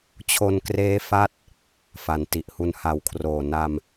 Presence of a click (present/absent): absent